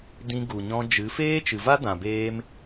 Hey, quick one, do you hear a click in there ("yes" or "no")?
no